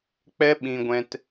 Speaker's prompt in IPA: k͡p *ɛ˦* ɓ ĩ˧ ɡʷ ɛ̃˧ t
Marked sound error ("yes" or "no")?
no